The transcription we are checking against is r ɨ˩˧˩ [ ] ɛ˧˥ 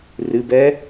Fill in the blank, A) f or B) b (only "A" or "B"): B